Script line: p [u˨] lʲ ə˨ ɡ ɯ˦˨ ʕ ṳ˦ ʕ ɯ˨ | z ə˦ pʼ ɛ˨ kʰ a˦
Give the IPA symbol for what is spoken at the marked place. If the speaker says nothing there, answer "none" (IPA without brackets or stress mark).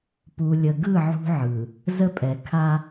u˨